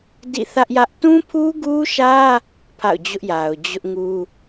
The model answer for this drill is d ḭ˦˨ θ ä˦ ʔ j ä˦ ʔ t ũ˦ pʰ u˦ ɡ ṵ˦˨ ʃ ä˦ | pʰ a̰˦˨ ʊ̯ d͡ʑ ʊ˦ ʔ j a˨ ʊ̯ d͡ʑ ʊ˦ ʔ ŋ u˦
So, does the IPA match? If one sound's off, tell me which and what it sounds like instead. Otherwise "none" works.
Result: ṵ˦˨ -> u˦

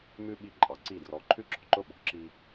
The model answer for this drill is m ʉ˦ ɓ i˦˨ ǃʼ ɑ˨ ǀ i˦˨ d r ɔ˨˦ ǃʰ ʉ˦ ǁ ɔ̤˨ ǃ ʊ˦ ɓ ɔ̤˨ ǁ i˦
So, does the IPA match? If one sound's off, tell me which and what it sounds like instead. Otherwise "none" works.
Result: none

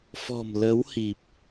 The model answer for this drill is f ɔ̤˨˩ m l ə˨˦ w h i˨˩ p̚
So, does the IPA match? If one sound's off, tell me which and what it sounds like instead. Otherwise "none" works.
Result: none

